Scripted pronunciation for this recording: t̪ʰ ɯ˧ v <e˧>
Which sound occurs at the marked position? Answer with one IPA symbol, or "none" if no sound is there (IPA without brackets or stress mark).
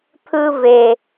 e˨˩